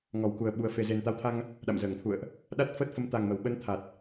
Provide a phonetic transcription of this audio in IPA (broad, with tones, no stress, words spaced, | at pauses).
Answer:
ŋɔ˨˩wku˨˩ə̯ɓu˨˩ə̯ fe˨˩ze˨˩nt̪a˨˦wt̪ʰa˧ŋ | ɗa̰˧˨mzəː˧˩ŋt̪ʰṵ˧˨ə̯ʔ | ɗa˦˥t̚fəː˦˥t̚ fə˨˦mt̪a˨˩ŋmə˧˩wɓə˧n t̪ʰa˨˩t̚